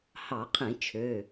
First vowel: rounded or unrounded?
unrounded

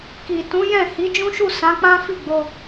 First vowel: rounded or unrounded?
unrounded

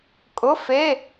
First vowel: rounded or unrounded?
rounded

